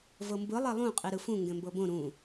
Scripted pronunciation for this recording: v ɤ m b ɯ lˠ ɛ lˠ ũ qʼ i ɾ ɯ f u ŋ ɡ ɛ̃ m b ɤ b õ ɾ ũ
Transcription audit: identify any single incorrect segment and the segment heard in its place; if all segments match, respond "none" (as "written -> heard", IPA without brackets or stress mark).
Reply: u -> ũ